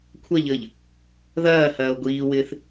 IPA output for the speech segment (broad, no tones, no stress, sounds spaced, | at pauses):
kʷʰ ɐ ʎ əː ʎ | ð ɐː h ɐː o̯ ɡʷ iː w ɪː θ